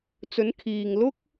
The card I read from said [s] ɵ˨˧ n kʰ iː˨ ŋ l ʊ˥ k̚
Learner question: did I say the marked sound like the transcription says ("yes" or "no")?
no